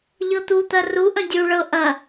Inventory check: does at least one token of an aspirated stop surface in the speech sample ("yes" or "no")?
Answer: no